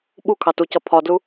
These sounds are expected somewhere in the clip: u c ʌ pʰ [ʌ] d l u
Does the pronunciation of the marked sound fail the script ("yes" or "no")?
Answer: yes